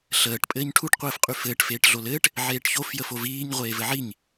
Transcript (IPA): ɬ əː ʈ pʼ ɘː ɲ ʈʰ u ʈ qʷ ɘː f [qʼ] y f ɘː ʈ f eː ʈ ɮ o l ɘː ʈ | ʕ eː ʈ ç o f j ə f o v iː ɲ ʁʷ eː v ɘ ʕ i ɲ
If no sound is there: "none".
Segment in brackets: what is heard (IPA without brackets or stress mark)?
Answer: qʼ